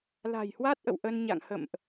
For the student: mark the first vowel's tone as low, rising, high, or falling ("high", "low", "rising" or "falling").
low